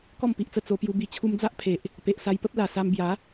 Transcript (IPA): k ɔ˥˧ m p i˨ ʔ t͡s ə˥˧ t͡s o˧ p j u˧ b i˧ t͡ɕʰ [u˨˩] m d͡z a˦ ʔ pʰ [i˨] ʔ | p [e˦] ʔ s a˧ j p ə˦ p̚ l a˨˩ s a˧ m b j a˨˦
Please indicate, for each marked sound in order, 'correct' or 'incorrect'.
incorrect: u˧, incorrect: e˨, incorrect: e˨

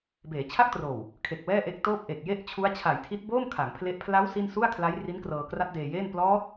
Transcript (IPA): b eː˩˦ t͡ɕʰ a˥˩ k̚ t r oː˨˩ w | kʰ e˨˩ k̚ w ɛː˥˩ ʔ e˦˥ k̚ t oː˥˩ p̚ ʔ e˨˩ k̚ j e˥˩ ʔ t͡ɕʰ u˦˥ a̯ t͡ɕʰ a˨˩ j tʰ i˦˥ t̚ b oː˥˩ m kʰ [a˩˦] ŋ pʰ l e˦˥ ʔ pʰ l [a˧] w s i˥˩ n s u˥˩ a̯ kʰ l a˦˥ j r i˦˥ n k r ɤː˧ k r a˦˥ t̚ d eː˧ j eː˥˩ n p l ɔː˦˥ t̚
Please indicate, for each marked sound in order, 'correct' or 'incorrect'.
correct, incorrect: a˦˥

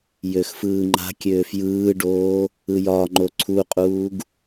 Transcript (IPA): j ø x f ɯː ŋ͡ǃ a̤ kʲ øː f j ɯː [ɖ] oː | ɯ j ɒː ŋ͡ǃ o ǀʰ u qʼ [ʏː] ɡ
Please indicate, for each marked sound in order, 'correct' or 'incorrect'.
correct, incorrect: uː

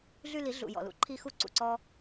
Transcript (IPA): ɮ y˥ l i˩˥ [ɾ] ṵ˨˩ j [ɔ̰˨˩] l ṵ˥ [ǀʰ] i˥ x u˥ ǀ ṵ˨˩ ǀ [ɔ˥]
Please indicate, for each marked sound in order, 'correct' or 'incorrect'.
incorrect: ɮ, correct, incorrect: ǃʰ, correct

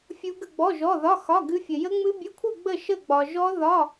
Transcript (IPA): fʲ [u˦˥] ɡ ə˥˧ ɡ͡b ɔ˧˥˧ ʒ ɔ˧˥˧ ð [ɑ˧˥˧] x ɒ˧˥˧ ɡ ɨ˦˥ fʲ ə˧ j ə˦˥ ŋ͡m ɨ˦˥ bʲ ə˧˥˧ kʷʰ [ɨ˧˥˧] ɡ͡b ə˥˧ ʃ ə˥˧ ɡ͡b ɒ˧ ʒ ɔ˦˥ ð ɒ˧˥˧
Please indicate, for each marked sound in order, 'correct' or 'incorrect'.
correct, incorrect: ɒ˧˥˧, incorrect: ɨ˥˧

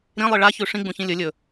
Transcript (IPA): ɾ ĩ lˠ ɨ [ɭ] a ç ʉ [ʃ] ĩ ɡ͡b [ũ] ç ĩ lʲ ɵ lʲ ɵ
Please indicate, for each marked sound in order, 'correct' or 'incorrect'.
correct, incorrect: ʂ, correct

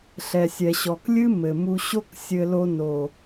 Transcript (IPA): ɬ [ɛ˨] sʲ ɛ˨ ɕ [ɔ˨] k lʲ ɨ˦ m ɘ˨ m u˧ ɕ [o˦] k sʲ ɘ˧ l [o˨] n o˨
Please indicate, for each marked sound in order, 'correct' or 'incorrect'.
correct, correct, correct, incorrect: o˧

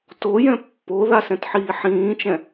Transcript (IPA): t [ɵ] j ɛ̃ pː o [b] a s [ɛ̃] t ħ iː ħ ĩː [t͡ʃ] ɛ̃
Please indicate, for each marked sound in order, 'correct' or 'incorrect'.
incorrect: o, incorrect: ð, correct, correct

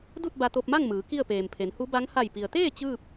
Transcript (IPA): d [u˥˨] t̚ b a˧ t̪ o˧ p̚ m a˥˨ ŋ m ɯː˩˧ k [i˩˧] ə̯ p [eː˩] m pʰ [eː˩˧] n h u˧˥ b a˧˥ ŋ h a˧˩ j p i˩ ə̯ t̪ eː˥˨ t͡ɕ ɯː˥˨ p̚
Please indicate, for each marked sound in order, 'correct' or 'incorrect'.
correct, incorrect: i˥˨, correct, incorrect: e˩˧

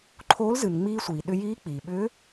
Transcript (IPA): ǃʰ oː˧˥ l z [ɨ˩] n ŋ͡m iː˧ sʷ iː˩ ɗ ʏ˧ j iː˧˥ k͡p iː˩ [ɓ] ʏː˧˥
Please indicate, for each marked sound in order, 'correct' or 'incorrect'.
correct, correct

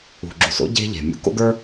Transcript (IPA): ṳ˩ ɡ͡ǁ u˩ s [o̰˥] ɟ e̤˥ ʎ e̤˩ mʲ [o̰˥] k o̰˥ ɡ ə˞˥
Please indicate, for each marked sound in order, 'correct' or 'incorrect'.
correct, incorrect: ṵ˥

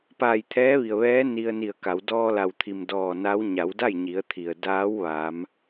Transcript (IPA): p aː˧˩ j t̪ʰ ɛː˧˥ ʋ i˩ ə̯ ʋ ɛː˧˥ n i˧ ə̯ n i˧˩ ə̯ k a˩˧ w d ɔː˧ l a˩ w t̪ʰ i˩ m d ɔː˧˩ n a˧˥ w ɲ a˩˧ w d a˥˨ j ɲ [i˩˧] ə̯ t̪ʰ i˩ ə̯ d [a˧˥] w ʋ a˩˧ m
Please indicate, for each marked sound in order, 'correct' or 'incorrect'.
correct, incorrect: aː˧˥

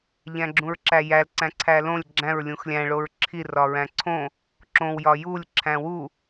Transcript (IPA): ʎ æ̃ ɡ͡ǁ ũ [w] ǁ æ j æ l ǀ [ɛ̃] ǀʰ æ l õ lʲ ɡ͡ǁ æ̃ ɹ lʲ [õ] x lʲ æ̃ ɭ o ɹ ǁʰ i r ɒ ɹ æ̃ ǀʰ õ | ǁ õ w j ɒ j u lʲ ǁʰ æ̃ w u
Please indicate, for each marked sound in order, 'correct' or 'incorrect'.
incorrect: ɹ, incorrect: æ̃, incorrect: ũ

